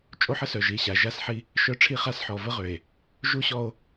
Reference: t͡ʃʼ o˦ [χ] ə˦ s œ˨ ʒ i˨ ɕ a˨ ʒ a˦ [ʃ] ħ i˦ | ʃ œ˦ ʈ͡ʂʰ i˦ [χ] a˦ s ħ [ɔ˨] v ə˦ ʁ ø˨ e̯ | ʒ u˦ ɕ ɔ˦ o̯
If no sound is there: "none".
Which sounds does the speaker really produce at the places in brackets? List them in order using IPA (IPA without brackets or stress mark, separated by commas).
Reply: ħ, s, χ, ɔ˨